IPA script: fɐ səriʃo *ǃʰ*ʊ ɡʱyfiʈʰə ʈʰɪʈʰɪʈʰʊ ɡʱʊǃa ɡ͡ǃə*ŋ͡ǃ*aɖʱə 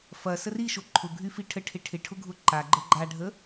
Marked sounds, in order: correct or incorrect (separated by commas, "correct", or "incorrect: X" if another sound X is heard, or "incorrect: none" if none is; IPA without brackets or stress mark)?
correct, incorrect: ɡ͡ǃ